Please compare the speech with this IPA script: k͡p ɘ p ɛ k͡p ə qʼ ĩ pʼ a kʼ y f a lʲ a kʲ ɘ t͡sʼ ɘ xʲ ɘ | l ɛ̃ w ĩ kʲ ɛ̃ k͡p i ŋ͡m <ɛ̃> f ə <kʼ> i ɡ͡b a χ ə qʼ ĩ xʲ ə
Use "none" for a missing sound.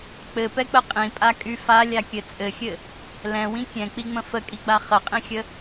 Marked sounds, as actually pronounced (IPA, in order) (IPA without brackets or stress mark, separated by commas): ə̃, kʼ